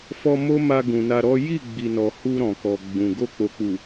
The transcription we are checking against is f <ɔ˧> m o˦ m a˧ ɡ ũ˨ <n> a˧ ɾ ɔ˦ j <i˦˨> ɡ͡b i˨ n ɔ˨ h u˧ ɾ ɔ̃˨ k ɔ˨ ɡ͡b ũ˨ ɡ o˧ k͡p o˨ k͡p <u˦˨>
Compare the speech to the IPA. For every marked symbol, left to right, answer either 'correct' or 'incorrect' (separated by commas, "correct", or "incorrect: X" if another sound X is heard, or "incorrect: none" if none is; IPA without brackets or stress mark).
correct, correct, correct, incorrect: u˨